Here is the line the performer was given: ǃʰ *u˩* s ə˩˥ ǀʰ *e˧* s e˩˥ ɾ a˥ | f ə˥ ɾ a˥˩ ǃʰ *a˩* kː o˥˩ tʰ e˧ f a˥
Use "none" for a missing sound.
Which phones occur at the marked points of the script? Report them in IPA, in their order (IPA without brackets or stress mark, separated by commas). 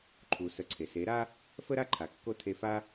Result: u˩, e˩, a˩